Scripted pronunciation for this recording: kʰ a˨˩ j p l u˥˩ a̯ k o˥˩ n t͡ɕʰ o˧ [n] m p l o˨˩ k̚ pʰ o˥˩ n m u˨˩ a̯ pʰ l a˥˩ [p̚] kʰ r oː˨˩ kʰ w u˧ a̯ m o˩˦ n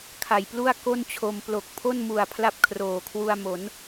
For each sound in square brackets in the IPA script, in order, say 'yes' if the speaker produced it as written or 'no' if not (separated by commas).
no, yes